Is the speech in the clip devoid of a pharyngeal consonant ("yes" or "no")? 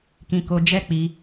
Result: yes